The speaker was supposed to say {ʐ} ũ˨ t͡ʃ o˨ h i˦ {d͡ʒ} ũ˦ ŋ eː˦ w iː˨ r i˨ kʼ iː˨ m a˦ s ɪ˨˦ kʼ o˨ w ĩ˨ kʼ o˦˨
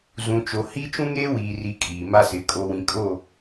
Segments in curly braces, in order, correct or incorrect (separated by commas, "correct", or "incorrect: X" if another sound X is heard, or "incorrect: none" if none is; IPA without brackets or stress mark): incorrect: z, incorrect: t͡ʃ